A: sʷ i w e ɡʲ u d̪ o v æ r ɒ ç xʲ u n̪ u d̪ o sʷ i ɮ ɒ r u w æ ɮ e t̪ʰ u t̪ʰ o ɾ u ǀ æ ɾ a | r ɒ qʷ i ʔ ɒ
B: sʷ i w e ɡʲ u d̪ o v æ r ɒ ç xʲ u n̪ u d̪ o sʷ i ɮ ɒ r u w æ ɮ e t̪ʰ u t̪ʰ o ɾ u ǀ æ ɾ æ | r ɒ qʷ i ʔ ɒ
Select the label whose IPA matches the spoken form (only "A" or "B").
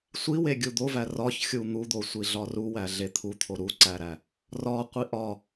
B